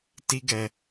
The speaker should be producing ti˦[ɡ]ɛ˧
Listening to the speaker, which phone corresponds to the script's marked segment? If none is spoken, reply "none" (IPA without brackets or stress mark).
ɡ